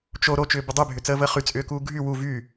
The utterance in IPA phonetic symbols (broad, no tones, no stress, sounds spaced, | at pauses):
t͡ʃ o ɾ o t͡ʃ ʏː b ʏ dˤ y bʱ ʏ t͡s əː v əː χ y t͡sʼ ʏː k uː ɡʱ y w u v y